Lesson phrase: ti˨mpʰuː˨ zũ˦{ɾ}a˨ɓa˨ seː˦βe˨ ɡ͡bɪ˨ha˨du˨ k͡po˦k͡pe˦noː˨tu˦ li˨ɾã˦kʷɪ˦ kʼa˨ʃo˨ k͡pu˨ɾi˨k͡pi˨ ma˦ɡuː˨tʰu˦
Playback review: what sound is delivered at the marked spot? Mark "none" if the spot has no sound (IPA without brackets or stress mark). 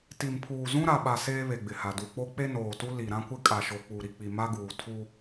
ɾ